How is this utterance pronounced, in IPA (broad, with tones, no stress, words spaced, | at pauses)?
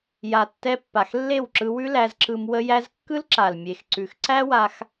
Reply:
ja˨tːɛ˧ pːa˨xlːe˦˨wǁɯ˧ wʉ˦læ˧zǁɯ˧m wə˦jæ˦z kːɯ˦lǁa˨l mʲe˨xǀʉ˨xǀæ˦wa˧x